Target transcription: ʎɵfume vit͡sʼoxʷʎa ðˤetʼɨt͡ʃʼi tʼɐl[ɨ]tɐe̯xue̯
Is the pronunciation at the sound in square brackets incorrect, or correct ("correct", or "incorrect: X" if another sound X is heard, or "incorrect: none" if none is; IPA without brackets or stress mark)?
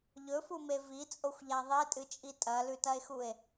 incorrect: ʉ